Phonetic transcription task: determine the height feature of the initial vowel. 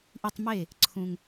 high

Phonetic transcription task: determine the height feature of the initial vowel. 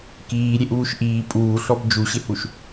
high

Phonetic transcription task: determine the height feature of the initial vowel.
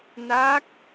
low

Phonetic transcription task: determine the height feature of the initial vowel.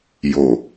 mid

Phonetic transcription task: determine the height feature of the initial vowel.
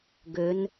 mid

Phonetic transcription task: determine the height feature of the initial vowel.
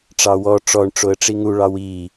low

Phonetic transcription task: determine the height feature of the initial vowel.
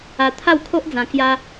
low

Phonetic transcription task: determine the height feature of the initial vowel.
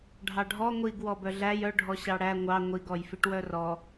low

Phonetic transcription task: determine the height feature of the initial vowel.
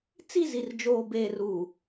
high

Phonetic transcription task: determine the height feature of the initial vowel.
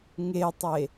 mid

